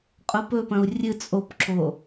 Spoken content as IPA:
qʼ ʊ p ɵ p ɐ̃ u̯ rʲ ɨ t͡sʼ o p ǁ o

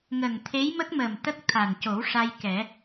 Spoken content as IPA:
ŋ ə˨˩ ŋ t̪ʰ e˧˥ j m ə˦˥ k̚ m ə˨˩ m t̪ ə˦˥ k̚ t̪ʰ a˨˩ n c o˨˩˦ w ʂ a˧ j k ɛ˨˩˦

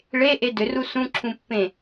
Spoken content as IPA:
ɭ e ʔ e d ʏ r u s ũ ǁʰ ũ pː ẽ

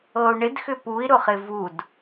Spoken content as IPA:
ɤ u̯ ɳ ɪ d x ʏ p u i̯ ɾ ʊ χ ɪ v u d

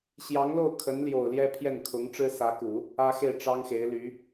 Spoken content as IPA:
ɕ j ɑ˧˥ ŋ l o˥˩ ʊ̯ kʰ ə˧˥ n l j o˨˩ ʊ̯ l j ɛ˥ pʰ j ɛ˥˩ n kʰ ʊ˧˥ ŋ ʈ͡ʂ ɻ̩˥ s ä˧˥ k u˨˩˦ | ä˥ x e˥˩ ɪ̯ ʈ͡ʂ ɑ˥ ŋ x e˧˥ ɪ̯ l y˧˥

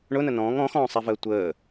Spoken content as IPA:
ɳ ʊ n ə n ɔ̃ː ŋ ɔ̃ x ɔ̃ː sˤ ɛ v əː tʷ əː

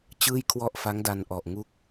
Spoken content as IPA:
t͡ɕ ɯː˥˩ j kʰ w ɔ˥˩ ʔ f a˦˥ ŋ d a˧ n ʔ ɔ˨˩ ʔ ŋ u˦˥ k̚

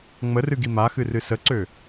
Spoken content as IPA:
ŋ͡m ə r ɨ ɡ i m a x ɨ r ɨ s ə ǀ ø

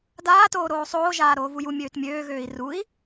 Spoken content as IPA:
d aː t oː ɾ oː sˤ oː ʒ aː ɾ oː v u j u mʲ øː t mʲ øː ɣ øː i̯ r u i̯

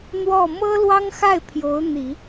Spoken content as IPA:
n̪ w ɔ˥˩ m ɤ˥ l w ɑ˥ ŋ x a˥˩ ɪ̯ pʰ j o˧˥ ʊ̯ n̪ i˨˩˦

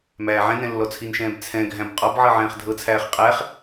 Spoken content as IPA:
m æː ʕ ɛ̃ n ɛ̃ lː ɔ t͡sʰ i n ʃ ɛ̃ː b t͡sʰ ɛ̃ ɡʱ æ̃ b qʼ ɔ b ʕ ɤ ʕ ɛ̃ː χ dʱ ɤ t͡sʰ æː χ qʼ æ χ

